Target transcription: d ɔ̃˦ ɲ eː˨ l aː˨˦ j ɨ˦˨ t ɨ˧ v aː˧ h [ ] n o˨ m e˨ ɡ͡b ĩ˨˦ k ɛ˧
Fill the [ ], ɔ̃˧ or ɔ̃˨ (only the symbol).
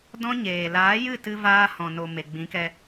ɔ̃˨